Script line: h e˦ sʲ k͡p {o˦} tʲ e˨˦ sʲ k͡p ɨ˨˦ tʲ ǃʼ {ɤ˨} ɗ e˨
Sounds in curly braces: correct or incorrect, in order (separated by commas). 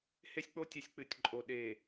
correct, incorrect